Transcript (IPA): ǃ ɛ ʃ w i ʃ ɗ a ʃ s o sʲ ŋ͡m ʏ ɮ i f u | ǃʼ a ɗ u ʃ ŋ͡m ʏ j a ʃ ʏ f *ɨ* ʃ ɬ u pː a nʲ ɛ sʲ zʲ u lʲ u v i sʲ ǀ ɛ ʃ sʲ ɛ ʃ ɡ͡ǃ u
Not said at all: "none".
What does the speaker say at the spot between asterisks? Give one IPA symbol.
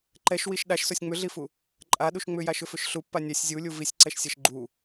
ʏ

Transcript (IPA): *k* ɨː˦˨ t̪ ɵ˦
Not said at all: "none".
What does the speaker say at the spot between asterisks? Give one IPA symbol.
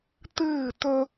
t̪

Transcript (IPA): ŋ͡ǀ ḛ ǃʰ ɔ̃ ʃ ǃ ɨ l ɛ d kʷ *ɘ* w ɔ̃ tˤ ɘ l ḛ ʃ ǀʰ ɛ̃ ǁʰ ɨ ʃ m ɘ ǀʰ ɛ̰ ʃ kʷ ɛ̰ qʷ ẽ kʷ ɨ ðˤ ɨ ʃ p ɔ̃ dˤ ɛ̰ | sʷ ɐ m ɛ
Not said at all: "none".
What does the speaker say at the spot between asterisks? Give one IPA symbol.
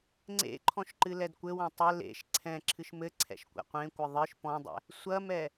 ɘ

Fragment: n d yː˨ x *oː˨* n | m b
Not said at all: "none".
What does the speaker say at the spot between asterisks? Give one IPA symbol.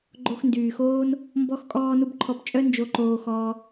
oː˦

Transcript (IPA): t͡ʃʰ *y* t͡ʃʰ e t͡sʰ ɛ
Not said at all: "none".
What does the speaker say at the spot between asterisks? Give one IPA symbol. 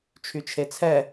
y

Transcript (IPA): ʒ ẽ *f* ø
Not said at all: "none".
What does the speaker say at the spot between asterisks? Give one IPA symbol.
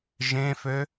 f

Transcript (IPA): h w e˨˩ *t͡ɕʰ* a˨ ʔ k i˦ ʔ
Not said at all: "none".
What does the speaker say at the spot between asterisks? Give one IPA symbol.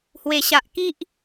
ɕ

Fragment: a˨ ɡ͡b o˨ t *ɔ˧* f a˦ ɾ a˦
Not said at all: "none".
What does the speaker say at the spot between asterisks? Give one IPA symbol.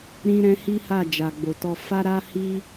ɔ˧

